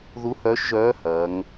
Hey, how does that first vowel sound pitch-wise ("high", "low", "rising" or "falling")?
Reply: rising